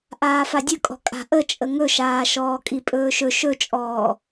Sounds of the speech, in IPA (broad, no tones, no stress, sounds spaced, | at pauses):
ʔ aː f a dʲ ɵ kʼ ɔ̤ kʼ a̤ ʔ ə t͡ʃʼ ə ŋ ɵ ʃ aː ʃ ɔː kʼ i pʼ ɵː ʃ ɵ ʃ ɵ t͡ʃʼ ɔː